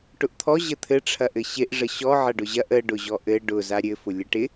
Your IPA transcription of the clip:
ʈ ʊ ʔ t̪ʰ ɔ ʑ ə t̪ʰ ɘ ʈ͡ʂʰ ɐ ʔ ɘ ɕ ɪ ʔ ʐ ə ɕ ɔ ʕ ɐ ɖ ʊ ʑ ɐ ʔ ə ɖ ʊ ʑ ɔ ʔ ɘ ɖ ʊ z a ɾʲ ɘ f ʊ lʲ ə ʈ ɪ

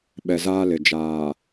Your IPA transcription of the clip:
ɓ ɛ˨ z aː˦ l ɪ˨ d͡ʒ aː˨

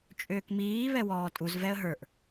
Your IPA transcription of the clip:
t͡ʃʼ ʏː k m iː β ɛ w ɔː tʼ u z v ɛ ə̯ ɦ ə˞ ʔ

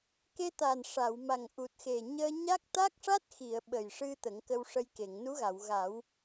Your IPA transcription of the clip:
k e˧ t̪ a˨˩ n ʂ a˨˩˨ w m a˨˩ ŋ ʔ u˨˩ t̚ x e˨˩ ɲ əː˧ ɲ a˦˥ k̚ t̪ a˦˥ k̚ ʂ a˦˥ t̚ x i˨˩˨ ə̯ ɓ ə˨˩ j ʂ ɨ˧ t̪ ə˨˩˦ ŋ k ə˧ w ʂ ə˧ j k e˨˩˨ ŋ n u˧˥ ɣ a˨˩˨ w ɣ a˨˩˦ w

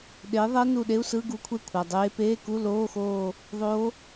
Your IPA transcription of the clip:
ɗ e˨˥ ðˤ ɛ˦˥ n u˦˨ ɗ e˧˥˧ u̯ s ɯ˧˥˧ ɡ u˨˥ kʷʰ e˦˨ kʷʰ ʌ˩˧˩ dˤ eː˦˥ p eː˧˥˧ k u˧˥˧ l oː˧˥˧ x oː˦˨ | ðˤ o˦˥

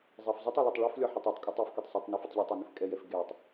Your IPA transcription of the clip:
zˤ ɛ f zˤ i tˤ i l ɪ tˤ ɭ e f lʲ ɒ ħ ɪ tˤ e tˤ kʼ ɪ tˤ i f k ɛ tˤ sˤ e tˤ n ɒ f ɪ tˤ ʎ e tˤ i n ɪ f kʼ ɛ j ɛ f ɡ e tˤ

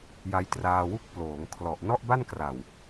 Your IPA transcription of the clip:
j a˧ j t r aː˧ w u˥˩ k̚ p l oː˩˦ ŋ kʰ l ɔ˨˩ ʔ n ɔ˥˩ ʔ b a˥˩ n k r a˨˩ w

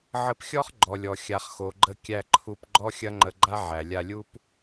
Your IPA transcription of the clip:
ʕ ə˧ p xʲ ɔ˦ χ ɡ͡ǃ ɔ˨ lʲ ɔ˨ xʲ a˨ χ x o˨ ɡ͡ǃ ə˧ kʲ æ˧ ǃʰ u˧ p ɡ͡ǃ ɔ˦ xʲ ɐ˦ ŋ͡ǃ ə˧ ɡ͡ǃ a˦ ʕ æ˨ lʲ a˧ lʲ u˦ p

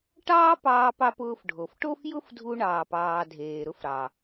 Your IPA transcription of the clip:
ʈ ɑː˥ p ɑː˧ p ɑ˧ p ʊː˧ f ɖʱ o˩ f ʈ o˥ f j ʊ˥ f dʱ u˧ ɳ ɑː˩ p ɑː˩ dʱ eː˩ ɾ ʊ˧ f ɾ ɑ˩

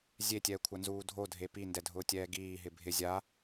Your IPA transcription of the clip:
zʲ e tʲ ɛː kʷʰ a n z uː dʱ o dʱ e p i n d ɛ dʱ ʊː tʲ ɛː ɡ iː ɦ ɪ bʱ ɪ zʲ a

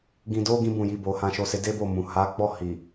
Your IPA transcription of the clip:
ɡ ĩ˧ d o˦ ɡ ĩ˦ b ũ˦˨ j i˨˦ b o˧ h ã˧ ʃ o˧ s e˧ d e˦ b o˦˨ m ũ˨ h a˨˦ ɡ͡b ɔ˦˨ h i˨

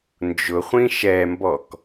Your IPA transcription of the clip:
n d͡ʒ ʊ χʷ ĩ ʃ ɛ m b ɔ k

